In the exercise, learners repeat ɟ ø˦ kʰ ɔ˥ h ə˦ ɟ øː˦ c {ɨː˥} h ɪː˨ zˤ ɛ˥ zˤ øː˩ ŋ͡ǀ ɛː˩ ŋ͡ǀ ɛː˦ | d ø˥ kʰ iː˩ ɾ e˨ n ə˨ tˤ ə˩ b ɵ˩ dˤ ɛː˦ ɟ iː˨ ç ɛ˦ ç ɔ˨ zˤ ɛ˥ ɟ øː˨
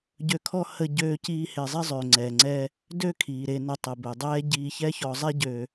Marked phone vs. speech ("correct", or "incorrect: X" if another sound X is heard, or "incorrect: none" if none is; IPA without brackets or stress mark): incorrect: iː˥